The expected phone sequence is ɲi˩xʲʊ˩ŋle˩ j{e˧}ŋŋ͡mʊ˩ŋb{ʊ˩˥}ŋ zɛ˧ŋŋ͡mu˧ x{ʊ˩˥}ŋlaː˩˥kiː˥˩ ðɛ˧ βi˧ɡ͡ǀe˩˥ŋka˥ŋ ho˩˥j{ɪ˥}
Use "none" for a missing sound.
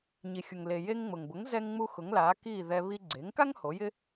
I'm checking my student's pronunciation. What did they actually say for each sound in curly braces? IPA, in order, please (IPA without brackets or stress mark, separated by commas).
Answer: e˧, ʊ˩˥, ʊ˩˥, ɪ˥